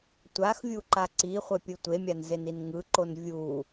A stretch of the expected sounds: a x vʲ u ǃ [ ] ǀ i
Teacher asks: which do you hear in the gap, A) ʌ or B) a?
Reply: B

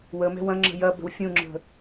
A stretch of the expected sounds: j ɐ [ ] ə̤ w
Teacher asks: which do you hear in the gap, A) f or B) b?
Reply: B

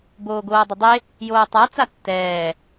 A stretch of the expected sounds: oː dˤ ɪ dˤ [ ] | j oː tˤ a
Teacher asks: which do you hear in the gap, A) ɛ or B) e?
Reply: B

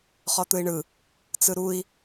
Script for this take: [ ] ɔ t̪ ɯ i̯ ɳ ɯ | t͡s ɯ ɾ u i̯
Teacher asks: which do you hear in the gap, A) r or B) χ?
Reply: B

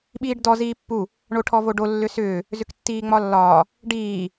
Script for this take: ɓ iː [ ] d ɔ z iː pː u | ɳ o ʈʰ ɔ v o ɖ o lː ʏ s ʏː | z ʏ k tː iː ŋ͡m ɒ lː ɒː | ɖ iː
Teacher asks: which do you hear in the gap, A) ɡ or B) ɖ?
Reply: B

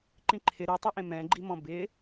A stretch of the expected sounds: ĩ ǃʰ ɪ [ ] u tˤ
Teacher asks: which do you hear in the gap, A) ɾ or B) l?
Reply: A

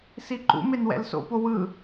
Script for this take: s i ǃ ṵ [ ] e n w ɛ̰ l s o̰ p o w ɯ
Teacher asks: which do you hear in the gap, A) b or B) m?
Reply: B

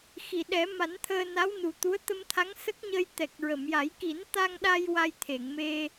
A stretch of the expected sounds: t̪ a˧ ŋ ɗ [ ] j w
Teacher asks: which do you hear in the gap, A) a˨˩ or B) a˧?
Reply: B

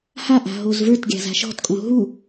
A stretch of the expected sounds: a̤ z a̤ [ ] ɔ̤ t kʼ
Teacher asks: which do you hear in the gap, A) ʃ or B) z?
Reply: A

